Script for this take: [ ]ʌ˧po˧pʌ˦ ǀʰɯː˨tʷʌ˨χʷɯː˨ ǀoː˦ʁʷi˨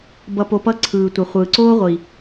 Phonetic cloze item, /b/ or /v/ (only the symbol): b